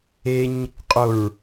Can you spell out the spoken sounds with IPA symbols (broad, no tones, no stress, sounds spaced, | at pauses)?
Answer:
e ɲ | qʼ o ɹ